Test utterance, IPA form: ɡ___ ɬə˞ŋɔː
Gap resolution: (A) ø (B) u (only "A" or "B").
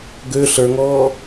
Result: A